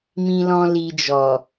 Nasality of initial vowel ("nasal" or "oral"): nasal